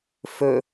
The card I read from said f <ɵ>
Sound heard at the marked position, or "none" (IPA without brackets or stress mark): ɵ